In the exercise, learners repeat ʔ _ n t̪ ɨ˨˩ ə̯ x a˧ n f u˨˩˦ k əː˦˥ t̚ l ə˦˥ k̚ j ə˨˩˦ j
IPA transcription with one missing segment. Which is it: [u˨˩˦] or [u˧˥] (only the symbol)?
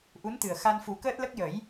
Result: u˧˥